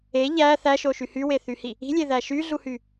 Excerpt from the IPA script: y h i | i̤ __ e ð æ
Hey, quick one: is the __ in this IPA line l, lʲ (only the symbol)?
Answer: lʲ